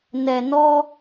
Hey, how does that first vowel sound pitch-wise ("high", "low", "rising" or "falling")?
low